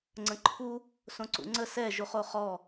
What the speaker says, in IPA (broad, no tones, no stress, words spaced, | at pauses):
ŋ͡ǀə̃ǃʰu | sõǀṵŋ͡ǀə sɛ ʒuχoχɔ